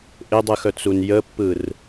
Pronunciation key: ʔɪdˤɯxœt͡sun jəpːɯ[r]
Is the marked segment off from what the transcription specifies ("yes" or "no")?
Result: no